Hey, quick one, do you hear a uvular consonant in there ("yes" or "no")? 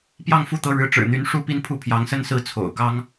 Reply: no